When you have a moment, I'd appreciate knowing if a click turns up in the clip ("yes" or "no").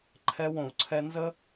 yes